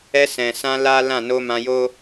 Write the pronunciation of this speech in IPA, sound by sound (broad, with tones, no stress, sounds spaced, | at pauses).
ɛ˧ s ɛ̃˨ s ã˧ l a˦ l ã˦˨ n o˧ m ã˧ j o˦